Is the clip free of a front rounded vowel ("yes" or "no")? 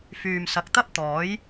no